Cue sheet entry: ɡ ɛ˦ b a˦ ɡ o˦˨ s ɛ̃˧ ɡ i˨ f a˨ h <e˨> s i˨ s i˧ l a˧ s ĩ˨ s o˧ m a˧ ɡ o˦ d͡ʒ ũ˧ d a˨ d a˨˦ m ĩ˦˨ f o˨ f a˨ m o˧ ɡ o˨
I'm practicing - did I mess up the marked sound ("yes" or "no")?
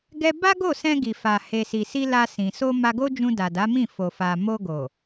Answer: no